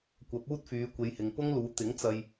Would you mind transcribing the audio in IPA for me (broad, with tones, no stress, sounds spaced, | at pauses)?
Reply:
kʷ ɐ˨˥ p̚ uː˥ t̚ f yː˨˧ kʷ e˨˧ j h ɪ˨ ŋ p ʊ˥ ŋ l uː˨˧ t̪ ɪ˨˥ ŋ t͡s ɐ˧ j